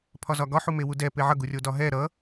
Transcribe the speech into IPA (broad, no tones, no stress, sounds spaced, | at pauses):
pʰ ɒ z ɒ ɡ ɒ ħ u m e w u d ɛ p e ʕ ʌ ɡ u rʲ o d ɒ ɦ ɛ ɾ ʌ